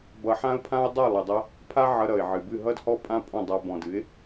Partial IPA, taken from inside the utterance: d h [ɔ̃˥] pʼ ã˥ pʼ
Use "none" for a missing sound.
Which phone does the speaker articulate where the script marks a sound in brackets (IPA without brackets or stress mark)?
ɔ˥